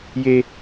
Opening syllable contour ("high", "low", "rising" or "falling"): high